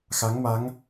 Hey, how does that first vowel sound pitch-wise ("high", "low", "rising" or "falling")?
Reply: rising